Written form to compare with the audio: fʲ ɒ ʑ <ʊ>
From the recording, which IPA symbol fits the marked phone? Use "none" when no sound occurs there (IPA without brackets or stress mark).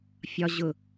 ʊ